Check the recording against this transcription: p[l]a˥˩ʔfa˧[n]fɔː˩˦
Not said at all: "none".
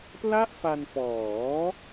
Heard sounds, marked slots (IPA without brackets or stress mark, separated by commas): l, n